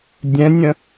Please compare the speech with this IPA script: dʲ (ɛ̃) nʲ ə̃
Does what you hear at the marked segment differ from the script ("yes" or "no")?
no